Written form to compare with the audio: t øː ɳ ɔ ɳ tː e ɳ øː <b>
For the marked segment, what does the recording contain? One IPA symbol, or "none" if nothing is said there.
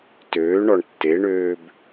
b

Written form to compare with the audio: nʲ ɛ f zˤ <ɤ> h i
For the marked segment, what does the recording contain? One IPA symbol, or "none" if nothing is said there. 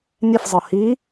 ɤ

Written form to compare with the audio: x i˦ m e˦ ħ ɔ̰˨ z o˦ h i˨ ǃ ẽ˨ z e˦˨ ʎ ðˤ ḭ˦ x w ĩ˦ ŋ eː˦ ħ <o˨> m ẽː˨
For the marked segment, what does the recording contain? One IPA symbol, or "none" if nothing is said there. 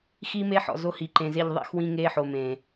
o˨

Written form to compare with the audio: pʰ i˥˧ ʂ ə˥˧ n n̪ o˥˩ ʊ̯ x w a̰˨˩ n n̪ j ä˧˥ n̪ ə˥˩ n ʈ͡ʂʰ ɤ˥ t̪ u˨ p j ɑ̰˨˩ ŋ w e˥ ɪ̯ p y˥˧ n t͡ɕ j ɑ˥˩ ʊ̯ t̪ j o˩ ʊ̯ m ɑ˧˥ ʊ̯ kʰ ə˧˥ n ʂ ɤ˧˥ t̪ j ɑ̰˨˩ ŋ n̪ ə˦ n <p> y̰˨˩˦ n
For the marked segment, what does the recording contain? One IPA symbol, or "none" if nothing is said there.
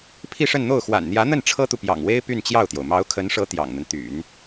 t̪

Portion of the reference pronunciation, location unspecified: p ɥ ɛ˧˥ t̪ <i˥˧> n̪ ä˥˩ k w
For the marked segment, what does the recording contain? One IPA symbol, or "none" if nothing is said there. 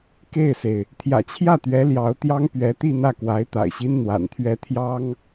i˥˧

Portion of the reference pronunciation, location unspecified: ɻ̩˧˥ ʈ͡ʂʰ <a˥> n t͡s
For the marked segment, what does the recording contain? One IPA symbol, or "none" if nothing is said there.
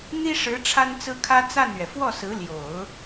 a˥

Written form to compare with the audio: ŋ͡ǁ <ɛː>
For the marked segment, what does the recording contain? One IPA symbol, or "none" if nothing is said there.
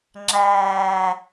æː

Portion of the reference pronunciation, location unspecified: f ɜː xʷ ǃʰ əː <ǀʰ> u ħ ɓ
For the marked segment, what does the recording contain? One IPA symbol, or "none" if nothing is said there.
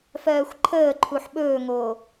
ǃʰ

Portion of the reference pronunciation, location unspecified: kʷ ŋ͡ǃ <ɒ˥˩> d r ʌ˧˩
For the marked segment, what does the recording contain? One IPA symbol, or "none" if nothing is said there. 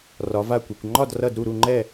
ɒ˥˩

